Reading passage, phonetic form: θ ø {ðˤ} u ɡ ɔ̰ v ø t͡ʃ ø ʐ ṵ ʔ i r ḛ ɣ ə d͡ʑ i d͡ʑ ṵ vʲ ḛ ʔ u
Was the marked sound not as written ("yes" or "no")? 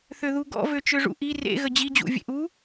yes